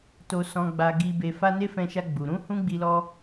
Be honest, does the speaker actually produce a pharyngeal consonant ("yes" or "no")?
no